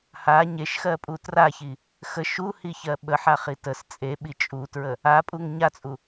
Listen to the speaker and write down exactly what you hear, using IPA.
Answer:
ha ɲeʃxɜpʼu traçi | xə ʃuhiçɜ ɓəħaχi təs t͡sʼeɓi t͡ʃʼutɹə | apʼuŋ ɲat͡sʼu

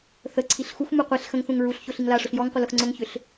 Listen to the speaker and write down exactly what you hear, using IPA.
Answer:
θəǀʰiɬ xuxmu qʷiɬ xə̃ŋθũŋ ɹuɬ çoɬiŋlaʂʊɬ jɔŋqʷə lʊxŋ͡ǀʊŋçʏɬ

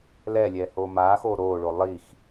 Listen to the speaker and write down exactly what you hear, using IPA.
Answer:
lɛːlʲɛːhoː maːxoː ɾoːɭo lˠix

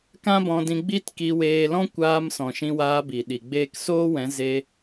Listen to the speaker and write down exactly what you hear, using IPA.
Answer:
kã˦bɔ̃˧dĩ˧ ɡ͡bi˦tki˧ weː˧lɔ̃˦ kʷaː˧msɔ̃˨ ʃĩ˧waː˧bi˨ ɗi˨ ɡ͡beː˦k soː˦wɛ̃˨˦ ze˧

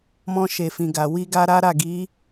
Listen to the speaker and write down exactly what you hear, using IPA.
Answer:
mɔ̃˧ʃe˨fĩ˨ɡa˨ wi˧ɡa˧ɾa˦ ɾa˦˨ɡi˨˦

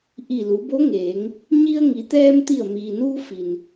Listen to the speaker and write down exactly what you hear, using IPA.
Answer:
ʔi˧˩lu˩˧bo˧˥ŋeː˩˧ŋ | ɲi˧ə̯ŋi˩˧t̪ɛː˧m t̪i˧˩ə̯miː˩nuː˧ fi˩n

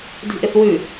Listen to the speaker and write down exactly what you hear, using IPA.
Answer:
di̤ʔɪθwʉ

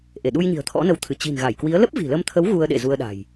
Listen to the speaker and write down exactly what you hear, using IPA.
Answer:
ʔe˧˩ɗu˧jɲi̤˨˩ə̯ t̪ʰɔ̰˧˥nə˨˦wt̪ʰɨ˧˩ t͡ɕi̤˨˩n ɣa˧˩jkwi˨˦ə̯ lə˦˥p̚vi̤˨˩lə˧mt̪ʰə˨˦w ɣu˧ə̯ɗḛ˧˨ zu˧ə̯ɗa̤˨˩j

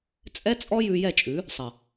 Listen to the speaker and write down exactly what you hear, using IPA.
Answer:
t͡sʼɛ˦t͡sʼɔ˦ jʉ˧jɛ˦˨t͡ʃʼʉ˨˦ | sˤɐ˨

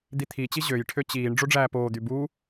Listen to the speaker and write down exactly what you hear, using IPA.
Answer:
d̪it̪ʰit͡ɕi ʑøjʈʰø t͡ɕiːɳ ɖ͡ʐoɖ͡ʐæːpoːd̪y bu

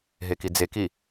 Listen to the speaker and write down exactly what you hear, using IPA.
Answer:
ɦekid͡zeki

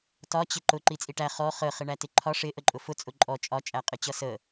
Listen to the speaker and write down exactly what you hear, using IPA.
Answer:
tɒ t͡ɕɪǃʊ ǃit͡sʼiʈæ χɔ χə χɪɳætɪǃʰɒ ʂɪ ʔəǃʼʊfʊ t͡sʼʊǃʼɔ t͡ʃʼɒ t͡ʃʼæqʼɪt͡ɕʌsə

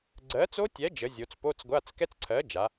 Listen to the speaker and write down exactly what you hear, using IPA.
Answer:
ɡ͡ǀɜ˨˥ t͡so˦˥tʲɛ˨˥d͡ʒə˩˧ zʲo˩˧t͡s po˧˥˧t͡sɡʷa˧˥˧t͡s kɛ˦˥t͡sǀʰɜ˨˥d͡ʒa˩˧

